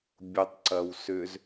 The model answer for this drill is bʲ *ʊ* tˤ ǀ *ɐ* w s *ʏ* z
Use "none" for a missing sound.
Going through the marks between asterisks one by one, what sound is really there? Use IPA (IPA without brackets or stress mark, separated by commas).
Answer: ʊ, ɐ, ʏ